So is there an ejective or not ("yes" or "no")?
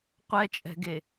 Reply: yes